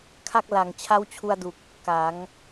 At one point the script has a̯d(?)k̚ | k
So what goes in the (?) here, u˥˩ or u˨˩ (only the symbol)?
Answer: u˨˩